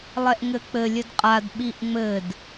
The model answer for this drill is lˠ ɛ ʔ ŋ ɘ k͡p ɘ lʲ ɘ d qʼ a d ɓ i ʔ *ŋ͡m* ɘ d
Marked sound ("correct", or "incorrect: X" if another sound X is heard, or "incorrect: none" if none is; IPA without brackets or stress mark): correct